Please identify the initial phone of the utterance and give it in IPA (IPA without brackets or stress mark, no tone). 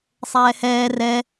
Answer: sˤ